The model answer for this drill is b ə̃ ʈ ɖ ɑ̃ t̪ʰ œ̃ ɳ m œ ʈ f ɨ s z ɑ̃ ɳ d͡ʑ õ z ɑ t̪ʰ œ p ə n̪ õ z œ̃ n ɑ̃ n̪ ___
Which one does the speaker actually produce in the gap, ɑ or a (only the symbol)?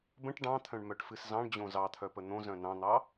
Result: ɑ